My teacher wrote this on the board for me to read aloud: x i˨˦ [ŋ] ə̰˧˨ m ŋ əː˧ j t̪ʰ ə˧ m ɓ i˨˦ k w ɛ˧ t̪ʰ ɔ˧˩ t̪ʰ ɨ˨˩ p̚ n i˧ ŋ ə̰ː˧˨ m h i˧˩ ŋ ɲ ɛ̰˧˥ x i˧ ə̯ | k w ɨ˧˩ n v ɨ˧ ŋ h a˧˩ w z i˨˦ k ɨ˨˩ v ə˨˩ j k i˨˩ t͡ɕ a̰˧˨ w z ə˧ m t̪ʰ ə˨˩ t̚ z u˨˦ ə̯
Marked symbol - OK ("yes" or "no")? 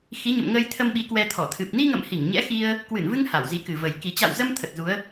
no